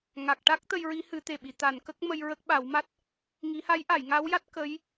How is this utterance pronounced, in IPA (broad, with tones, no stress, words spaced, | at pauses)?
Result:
ŋa˨˩k̚ʈa˦˥k̚ t̪ə˧jɹi˧˥ hɨ˨˩˦t̪e˨˩ɓi˨˩˨ t̪a˨˩˨nkə˦˥k̚ mə˧j ɹə˦˥k̚ ɓa˨˩˦wma˦˥t̚ | ŋi˨˩˦ha˧˥jʔa˨˩˨j ŋa˧˥wja˦˥t̚ kə˧˥j